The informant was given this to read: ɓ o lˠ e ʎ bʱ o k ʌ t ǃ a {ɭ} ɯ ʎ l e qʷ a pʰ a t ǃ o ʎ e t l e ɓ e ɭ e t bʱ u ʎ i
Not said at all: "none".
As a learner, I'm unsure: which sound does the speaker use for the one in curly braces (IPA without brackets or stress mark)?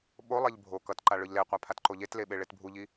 ɭ